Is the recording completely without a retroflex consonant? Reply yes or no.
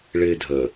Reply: no